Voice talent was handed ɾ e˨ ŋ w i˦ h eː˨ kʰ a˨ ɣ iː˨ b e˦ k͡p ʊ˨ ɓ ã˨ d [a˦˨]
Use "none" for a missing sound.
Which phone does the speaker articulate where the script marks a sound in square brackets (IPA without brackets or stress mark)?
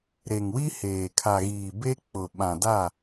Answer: a˦˨